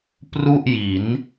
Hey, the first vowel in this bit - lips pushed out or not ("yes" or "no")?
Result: yes